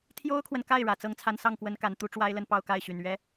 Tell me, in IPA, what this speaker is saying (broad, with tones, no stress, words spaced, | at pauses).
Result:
t̪ʰjo˥ʊ̯kʰwə˨nka˥˩ɪ̯ ɻä˨˩t͡sɤ˥ŋt͡sʰa˥˧n sɑ˥˩ŋkwə˧˥nka˨˩n t̪u˥ʈ͡ʂwa˥ɪ̯lə˥˧n pɑ˥˧ʊ̯ka˥˩ɪ̯ɕy˨˩n ɥɛ˥